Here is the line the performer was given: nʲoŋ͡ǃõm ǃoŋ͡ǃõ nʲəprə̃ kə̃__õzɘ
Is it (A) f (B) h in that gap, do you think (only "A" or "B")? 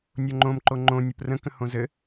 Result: B